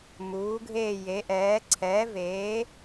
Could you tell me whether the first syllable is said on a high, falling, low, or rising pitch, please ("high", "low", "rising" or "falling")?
rising